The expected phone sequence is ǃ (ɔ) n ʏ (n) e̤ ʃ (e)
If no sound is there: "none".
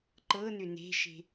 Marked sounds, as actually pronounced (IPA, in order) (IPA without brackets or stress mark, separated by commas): ɤ, n, e̤